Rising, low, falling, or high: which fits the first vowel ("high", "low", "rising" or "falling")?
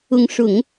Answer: rising